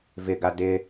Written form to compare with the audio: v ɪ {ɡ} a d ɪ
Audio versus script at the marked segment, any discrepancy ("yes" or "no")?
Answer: no